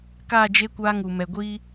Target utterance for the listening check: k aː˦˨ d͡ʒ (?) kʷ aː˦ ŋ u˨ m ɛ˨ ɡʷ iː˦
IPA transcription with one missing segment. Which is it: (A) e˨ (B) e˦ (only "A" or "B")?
B